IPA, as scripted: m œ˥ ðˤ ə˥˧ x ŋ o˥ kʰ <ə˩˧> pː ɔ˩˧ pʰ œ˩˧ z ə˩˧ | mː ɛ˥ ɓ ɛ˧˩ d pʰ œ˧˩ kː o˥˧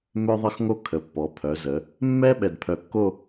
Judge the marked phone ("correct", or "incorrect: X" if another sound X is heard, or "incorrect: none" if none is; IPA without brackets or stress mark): correct